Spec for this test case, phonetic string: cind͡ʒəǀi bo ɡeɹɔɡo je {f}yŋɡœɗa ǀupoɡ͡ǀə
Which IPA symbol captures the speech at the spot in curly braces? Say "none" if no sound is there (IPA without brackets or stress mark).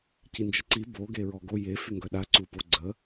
f